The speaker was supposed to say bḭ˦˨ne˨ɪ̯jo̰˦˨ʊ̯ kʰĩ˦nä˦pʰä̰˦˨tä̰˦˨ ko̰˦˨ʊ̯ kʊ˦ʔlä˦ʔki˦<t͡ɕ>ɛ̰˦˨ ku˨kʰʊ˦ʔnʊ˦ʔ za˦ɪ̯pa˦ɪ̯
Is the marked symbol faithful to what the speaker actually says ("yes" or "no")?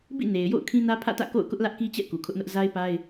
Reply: yes